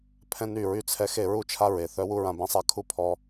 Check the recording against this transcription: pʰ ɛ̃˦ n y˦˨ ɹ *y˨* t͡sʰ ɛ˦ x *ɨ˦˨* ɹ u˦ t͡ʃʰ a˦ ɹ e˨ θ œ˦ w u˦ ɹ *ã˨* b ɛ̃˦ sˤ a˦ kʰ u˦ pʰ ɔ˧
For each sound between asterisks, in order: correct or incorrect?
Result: incorrect, incorrect, incorrect

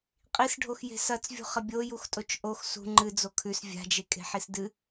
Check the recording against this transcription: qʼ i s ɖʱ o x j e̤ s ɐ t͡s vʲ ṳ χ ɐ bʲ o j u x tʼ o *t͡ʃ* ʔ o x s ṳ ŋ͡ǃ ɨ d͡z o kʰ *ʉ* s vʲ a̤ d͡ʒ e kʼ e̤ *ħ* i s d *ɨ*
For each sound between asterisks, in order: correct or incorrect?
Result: correct, correct, correct, correct

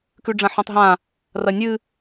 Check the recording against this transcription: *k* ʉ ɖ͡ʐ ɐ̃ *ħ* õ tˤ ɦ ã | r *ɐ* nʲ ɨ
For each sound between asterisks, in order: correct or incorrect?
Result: correct, correct, correct

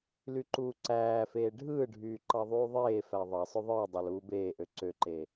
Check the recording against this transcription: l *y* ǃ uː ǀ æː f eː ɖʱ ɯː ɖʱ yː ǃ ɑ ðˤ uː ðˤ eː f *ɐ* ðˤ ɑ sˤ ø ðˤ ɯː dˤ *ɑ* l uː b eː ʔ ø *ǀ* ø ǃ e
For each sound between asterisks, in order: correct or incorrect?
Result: correct, incorrect, correct, correct

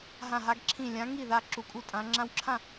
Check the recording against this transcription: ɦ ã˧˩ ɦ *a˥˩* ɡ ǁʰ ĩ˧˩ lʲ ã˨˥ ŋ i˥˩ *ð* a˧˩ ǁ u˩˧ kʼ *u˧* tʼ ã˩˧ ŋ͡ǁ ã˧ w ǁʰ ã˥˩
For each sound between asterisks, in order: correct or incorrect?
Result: incorrect, correct, incorrect

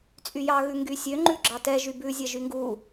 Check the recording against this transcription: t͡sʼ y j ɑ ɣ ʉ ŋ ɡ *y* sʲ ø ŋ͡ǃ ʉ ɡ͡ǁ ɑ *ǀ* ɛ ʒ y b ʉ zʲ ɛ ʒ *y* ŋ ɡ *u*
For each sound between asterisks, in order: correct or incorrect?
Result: correct, incorrect, correct, correct

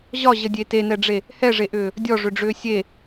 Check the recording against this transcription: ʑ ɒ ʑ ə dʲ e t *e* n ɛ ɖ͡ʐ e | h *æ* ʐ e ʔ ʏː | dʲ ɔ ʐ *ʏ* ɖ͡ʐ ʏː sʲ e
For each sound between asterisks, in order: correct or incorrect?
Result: correct, incorrect, correct

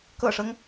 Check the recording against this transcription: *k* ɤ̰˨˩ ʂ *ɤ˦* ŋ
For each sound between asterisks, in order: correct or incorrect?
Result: correct, correct

